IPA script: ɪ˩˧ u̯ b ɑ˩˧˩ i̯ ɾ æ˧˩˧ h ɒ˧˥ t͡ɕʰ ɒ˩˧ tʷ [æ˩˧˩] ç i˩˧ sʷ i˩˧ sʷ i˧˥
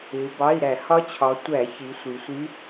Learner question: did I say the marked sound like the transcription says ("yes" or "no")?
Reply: no